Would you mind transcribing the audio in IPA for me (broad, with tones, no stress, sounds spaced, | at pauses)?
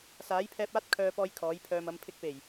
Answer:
s aː˨˥ j pʰ ɛː˧ p̚ aː˥ t̚ kʰ œː˧ p ɔː˧ j kʰ ɔː˨˥ j pʰ œː˧ m ɐ˨˧ m pʰ ɪ˧ k̚ p e˨˩ j